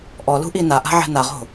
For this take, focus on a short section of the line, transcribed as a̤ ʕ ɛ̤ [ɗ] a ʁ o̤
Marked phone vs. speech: incorrect: n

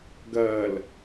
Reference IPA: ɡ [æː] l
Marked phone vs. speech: incorrect: ɐː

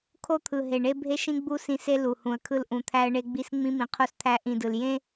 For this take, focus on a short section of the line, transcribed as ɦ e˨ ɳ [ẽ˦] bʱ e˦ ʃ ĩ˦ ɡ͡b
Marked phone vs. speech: incorrect: e˦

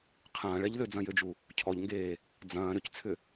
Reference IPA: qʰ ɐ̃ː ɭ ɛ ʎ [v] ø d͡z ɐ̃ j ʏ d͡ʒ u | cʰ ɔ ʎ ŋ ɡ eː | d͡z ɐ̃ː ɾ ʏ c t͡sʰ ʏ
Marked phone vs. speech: incorrect: ð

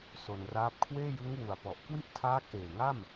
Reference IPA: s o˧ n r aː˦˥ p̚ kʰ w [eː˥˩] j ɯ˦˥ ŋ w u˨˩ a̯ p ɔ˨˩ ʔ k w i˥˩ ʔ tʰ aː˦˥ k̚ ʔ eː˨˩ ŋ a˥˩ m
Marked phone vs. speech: correct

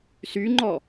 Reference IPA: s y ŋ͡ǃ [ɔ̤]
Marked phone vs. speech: incorrect: ɔ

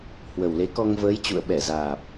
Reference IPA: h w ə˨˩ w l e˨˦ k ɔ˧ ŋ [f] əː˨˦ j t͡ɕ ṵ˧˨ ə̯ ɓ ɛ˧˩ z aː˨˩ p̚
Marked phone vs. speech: incorrect: v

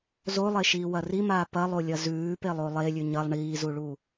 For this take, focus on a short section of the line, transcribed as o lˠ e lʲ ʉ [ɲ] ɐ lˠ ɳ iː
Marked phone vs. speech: correct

